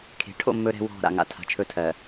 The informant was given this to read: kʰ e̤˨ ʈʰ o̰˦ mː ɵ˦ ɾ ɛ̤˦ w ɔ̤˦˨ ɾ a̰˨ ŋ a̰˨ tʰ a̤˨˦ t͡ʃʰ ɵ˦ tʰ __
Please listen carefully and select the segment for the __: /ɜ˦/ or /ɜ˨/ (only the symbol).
ɜ˨